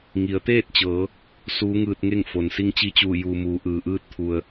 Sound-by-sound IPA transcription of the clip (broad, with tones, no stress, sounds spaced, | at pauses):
ŋ i˩˧ ə̯ t̪ eː˥˨ t̚ t͡ɕ ɤː˩˧ | s uː˧˥ ŋ ɯː˧ t̚ ŋ e˥˨ ŋ f o˩ n s i˧˥ ŋ t͡ɕ i˧˥ t͡ɕ uː˧˩ j uː˩ m uː˩˧ ʔ ɯː˩ ʔ ɯː˧ t̚ t̪ʰ u˩ ə̯